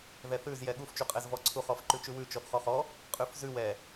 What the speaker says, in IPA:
ð ɛ θ ʉ z j ɛ ɠ u f t͡ʃ u qʼ ɛ z v ɔ ǀʰ u χ ɔ f ǃ ʉ t͡ʃ ʉ w ʉ t͡ʃ ɔ θ χ ɔ χ ɔ | qʼ ʉ f z ʉ w ɛ

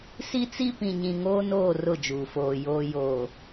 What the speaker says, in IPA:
s i˦ t͡s i˦ p ĩ˨ ɲ ĩ˨ ŋ oː˦ n oː˦˨ r ʊ˦˨ d͡ʒ uː˨ f oː˨ j oː˨ j oː˨

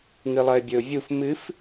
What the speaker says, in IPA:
ŋ ɨ lˠ ɐ ɪ̯ bʲ ɵ ʊ̯ vʲ u f m ɨ f

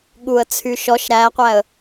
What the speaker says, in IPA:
ɠ u ə̯ t͡sʰ y ʃ ɔ ʃ ɾ æ qʷ æ ə̯

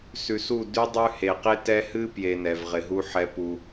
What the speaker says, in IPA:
s ʉ˨ s u˦˨ d ʉ˦ dˤ ʉ˦ h e˨ q e˦ t ɛ˦ h ɨ˦ p j e˨ n ɛ˨ v ʁ ɪ˨ ɦ u˦ ħ ɛ˦ p u˦

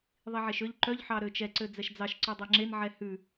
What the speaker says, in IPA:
ðˤ i ʕ e ʃ ø ʎ ǃ œ ʎ ħ ɑ ɾ ø t͡ʃ ɛ ǀ ø d͡z ɛ ʃ d͡z ɑ ʃ ǀ ʉ dˤ e ŋ͡ǁ e n ʕ ɛ h ʉ

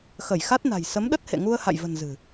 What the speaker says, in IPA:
x ə˧˩ j x a˦˥ t̚ n a̤˨˩ j s ə˨˦ m ɗ ə˦˥ t̚ h ḛ˧˨ ŋ u˧ ə̯ h a̰˧˨ j v ə̤˨˩ n z ɨ̤˨˩

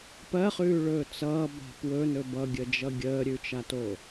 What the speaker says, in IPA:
p ɜ χ ʉː ɭ ɵː t͡s ʌː b a̤ p w ɵ n ɵ b ʌ ɡʲ ə d͡ʒ ʌ ɡʲ əː ɾʲ ʉ t͡ʃ a t o

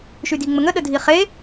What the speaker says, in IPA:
ʃ y d i ŋ͡m ə ŋ ə ɗ ə dʱ i χ e

